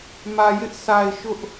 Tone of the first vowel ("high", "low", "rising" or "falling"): low